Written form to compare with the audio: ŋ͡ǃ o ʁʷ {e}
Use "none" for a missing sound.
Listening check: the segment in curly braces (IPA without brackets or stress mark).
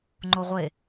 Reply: e